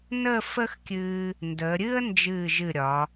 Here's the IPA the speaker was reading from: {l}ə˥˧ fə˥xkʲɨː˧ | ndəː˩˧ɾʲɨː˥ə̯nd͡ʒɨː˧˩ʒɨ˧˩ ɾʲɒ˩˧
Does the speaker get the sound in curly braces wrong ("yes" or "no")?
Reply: yes